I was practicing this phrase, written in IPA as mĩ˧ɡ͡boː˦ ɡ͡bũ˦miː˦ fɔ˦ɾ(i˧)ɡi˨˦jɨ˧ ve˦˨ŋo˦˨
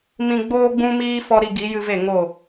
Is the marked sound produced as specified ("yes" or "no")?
yes